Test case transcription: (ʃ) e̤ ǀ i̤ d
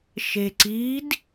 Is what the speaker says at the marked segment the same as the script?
yes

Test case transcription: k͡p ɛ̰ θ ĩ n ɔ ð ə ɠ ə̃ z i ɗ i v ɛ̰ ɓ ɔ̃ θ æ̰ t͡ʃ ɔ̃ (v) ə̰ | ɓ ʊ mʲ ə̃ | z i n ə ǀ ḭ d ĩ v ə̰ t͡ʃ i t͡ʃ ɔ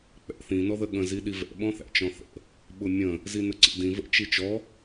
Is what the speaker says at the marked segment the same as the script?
no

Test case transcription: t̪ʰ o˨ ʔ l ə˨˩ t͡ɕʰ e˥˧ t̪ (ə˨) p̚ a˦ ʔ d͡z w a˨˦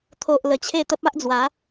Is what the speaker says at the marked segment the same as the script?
no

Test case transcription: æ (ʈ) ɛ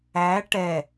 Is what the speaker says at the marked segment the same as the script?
yes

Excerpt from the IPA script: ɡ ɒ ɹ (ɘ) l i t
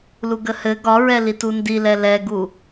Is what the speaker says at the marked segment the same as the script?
no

